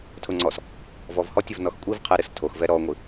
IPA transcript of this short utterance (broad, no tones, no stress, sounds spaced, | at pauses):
tʰ ʊ ŋ͡ǀ ɔ s | v ɔ v h ɔ tʲ ə v n ɔ x kʷʼ i v qʰ ɛ ɾ ɨ s tʰ o x v ɛ ɾ ɔ ŋʷ ɨ